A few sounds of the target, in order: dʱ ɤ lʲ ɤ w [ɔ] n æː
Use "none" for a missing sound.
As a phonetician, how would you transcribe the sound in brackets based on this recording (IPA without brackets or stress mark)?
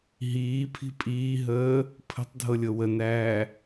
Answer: ə